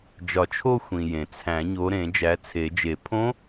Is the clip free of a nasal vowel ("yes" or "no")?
no